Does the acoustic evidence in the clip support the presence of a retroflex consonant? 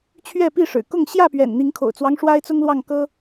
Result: yes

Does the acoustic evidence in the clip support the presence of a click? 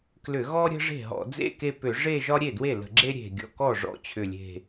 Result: yes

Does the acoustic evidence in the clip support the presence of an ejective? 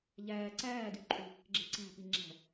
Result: yes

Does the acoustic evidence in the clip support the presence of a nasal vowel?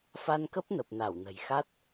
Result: no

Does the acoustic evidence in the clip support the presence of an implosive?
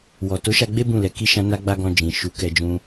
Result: no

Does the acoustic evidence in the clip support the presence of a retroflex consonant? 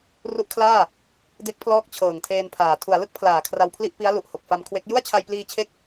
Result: no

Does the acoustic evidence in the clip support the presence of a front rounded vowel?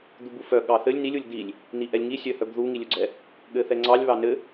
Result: yes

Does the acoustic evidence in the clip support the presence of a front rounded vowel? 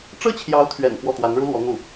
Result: no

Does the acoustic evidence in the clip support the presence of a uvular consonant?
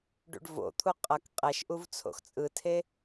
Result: yes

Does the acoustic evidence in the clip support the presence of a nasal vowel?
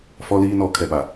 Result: no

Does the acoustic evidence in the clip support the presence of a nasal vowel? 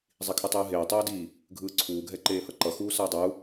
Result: no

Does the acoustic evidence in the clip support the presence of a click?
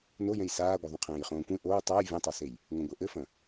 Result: no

